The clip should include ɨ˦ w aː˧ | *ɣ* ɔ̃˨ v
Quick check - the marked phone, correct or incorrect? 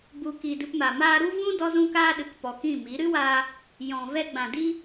incorrect: j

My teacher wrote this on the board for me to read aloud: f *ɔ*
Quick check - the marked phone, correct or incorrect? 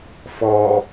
correct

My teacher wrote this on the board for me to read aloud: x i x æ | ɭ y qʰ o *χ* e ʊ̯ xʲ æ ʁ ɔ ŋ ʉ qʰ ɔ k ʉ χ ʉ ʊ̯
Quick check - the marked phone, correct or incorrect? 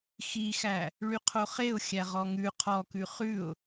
correct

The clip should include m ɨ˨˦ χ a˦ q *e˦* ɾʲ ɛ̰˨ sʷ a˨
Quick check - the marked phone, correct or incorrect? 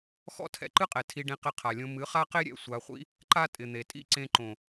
correct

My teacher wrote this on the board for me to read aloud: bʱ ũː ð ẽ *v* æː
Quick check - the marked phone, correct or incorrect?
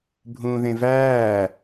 correct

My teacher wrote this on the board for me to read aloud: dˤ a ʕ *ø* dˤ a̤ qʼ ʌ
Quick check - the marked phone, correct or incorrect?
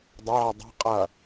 incorrect: e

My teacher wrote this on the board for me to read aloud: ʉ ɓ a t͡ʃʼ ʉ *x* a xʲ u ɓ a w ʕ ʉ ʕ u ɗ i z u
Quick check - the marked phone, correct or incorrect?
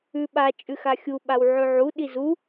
correct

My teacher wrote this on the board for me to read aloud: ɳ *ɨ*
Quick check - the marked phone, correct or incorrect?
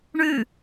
incorrect: ʉ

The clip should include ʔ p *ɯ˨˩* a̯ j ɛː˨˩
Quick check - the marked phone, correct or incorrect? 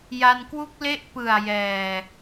correct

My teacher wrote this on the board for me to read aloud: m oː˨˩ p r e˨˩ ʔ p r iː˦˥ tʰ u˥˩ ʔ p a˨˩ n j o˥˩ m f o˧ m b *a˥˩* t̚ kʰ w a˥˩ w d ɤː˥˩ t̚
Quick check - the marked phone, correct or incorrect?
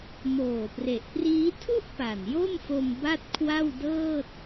correct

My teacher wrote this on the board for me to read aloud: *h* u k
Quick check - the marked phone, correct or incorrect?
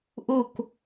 incorrect: ʔ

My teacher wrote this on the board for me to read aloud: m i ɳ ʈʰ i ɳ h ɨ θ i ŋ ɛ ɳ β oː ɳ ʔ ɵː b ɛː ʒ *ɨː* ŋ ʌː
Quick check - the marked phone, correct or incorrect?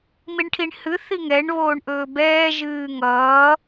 correct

